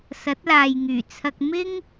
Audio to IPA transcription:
sɐ˨˥t̚laː˨jŋyː˨˩t͡sʰɐ˧k̚ mɪ˥ŋ

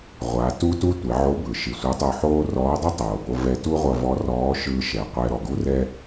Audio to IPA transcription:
ʁʷa˩˧ tu˥tu˥ tʷɛ˩˧ʕo˧˥bɯ˩ ʃi˩sʷʌ˧˥tˤo˧ħoː˥ rɔː˧˥dˤi˥tˤoː˩bo˧ vɛ˧tu˥ʁʷʌ˧ vɔ˧˥rɔː˧˥ʃɯː˧ ʃɛ˩qʷɛ˧ɾɔ˩ ɡu˥rɛ˥

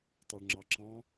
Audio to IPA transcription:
tˤœɭŋ͡ǁɑǁɑ̃

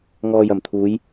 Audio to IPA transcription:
ŋɔː˨jɐ˨˩mt̪ʰuː˨˧j

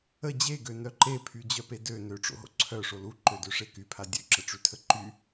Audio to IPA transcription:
ə d͡ʑeɡønœ ǃepʰyd͡ʑœpe dø nøʈ͡ʂo̰ɦo̰ ǀʰœʂo luǃødøʂe kypʰa dʲøǁəʈ͡ʂytʰə ǃy

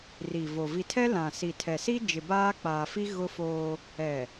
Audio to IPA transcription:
ri˨vo˨ vi˨tʰɛ˦ lã˨ si˨tʰɛ˨ si˦ d͡ʒɪ˨baː˦k͡paː˨fi˦ ɣʊ˦foː˦ | ɛ˨

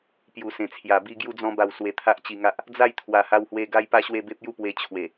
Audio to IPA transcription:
pju˨˩sẽ˨˩t͡sʰja˨˩ bi˧ ɡju˧d͡zɔ̃˧ba˨˩w swe˧t̪ʰa˦ʔt͡ɕi˧ŋa˦ʔ | d͡za˥˧jt̪ʰwa˨˩ha˧whwe˧ ɡa˦jpa˦ɕwe˥˧ be˦p̚ju˦pwe˧ t͡ɕʰwe˨˩

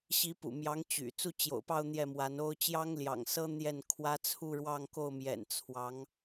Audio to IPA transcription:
ɕi˧˥pṵ˨˩ mjɑ˧˥ŋ t͡ɕy̰˨˩ t͡su˥˩t͡ɕjo̰˨˩ʊ̯pɑ˥˧ʊ̯ n̪jɛ˥˩mwa˧˥no˥ʊ̯ t͡ɕjɑ˥ŋljɑ̰˨˩ŋsɤ˥ n̪jɛ˥˩nkʰwä˥ t͡sʰu˥˧ɻwɑ˥˧ŋko˥˩ʊ̯mjɛ̰˨˩n t͡sʰwɑ˧˥ŋ

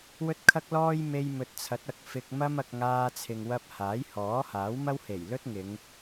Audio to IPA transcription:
wɵ˥t̚kʰɐ˥k̚lɔː˥j me˧jmɵ˨t̚t͡sʰɐ˨˥t̚ ɐ˨k̚fɪ˧k̚mɐ˥mɐ˧k̚ ŋaː˧t͡sʰɪ˨ŋwɐ˧p̚ haː˨˥jhɔː˨˥haː˨˥wmɐ˥w he˨˩jlɵ˥t̚ŋɪ˨˧ŋ

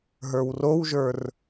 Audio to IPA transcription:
ɦə˞wrowʒə˞r

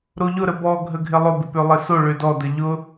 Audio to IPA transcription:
ɾoʎʊ ɾəbɔ ɡʱəɡʱɪlˠʊ bɪpølˠɪso ɭødɔ dəʎʊ

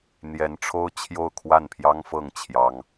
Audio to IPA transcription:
n̪jɛ˧˥nʈ͡ʂʰo˥ʊ̯ t͡ɕʰjo˥˧ʊ̯kʰwa˥˩npʰjɑ˥ŋfɤ˥˩ŋ t͡ɕʰjɑ˥ŋ

